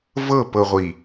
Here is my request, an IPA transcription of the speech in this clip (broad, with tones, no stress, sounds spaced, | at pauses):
v ɤ˦˨ p ɤ˨ ʁʷ i˨